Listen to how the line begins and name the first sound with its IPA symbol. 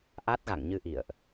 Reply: ʔ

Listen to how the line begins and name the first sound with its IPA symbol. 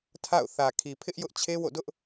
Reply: tʰ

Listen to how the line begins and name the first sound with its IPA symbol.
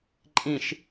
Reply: ǃʼ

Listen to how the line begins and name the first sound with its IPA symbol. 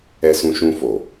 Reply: ɛ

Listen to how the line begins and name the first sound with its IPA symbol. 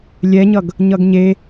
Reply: lʲ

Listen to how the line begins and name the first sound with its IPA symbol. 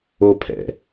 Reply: o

